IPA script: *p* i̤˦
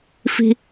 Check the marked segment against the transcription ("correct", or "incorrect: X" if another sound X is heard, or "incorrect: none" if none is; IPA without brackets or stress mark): incorrect: f